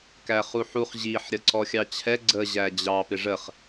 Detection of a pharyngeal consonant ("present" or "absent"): present